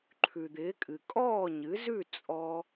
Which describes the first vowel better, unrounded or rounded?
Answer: rounded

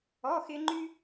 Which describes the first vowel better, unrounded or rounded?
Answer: rounded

